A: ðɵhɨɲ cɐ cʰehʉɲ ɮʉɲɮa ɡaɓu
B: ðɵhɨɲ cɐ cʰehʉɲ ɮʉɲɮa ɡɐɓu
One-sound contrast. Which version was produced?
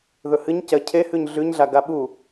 A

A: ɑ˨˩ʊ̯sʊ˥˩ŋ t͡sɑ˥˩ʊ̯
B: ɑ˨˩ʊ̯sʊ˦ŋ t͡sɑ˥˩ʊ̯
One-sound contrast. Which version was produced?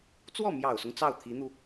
B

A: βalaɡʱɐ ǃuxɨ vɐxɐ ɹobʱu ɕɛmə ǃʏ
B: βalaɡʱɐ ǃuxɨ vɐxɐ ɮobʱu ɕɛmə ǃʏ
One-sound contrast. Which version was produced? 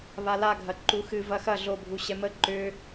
B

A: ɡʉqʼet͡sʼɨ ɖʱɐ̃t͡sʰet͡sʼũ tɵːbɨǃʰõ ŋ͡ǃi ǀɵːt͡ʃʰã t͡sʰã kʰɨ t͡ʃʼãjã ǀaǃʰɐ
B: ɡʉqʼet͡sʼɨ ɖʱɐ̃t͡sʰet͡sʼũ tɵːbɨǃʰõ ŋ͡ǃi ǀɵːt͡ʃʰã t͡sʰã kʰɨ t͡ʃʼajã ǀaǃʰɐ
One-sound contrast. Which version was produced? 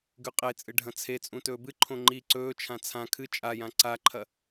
B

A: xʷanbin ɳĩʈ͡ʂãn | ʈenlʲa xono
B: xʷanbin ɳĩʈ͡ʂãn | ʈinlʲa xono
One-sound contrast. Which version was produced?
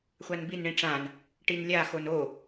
B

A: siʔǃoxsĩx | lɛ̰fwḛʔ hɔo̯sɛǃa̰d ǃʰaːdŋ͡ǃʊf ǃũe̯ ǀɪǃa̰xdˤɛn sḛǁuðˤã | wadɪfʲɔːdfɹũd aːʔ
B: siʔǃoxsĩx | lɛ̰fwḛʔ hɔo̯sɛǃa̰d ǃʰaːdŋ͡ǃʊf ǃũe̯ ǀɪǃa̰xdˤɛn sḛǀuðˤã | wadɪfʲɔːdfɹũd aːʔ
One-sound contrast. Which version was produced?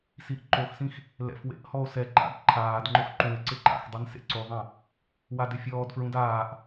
B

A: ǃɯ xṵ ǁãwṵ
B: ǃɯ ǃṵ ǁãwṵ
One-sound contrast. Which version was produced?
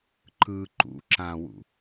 B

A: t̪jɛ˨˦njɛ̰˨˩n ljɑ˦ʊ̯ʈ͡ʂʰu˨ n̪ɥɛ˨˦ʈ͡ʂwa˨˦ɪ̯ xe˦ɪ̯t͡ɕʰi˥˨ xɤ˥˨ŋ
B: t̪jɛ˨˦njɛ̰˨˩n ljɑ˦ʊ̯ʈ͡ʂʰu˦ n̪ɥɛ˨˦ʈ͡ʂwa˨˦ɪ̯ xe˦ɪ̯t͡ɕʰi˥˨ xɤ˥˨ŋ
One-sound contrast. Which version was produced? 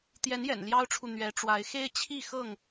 A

